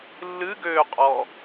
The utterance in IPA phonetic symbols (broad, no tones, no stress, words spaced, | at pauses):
lːɨɡøːqʼɔ